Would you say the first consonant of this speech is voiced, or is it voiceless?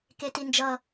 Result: voiceless